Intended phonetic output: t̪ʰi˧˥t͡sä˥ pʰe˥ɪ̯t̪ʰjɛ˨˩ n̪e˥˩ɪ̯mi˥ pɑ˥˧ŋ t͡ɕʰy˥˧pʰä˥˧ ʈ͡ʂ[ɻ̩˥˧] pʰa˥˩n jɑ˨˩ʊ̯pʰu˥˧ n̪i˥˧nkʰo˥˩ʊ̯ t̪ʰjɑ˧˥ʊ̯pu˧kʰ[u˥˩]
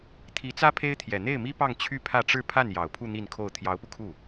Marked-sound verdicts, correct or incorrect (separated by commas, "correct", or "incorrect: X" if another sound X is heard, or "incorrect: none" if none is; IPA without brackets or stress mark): correct, correct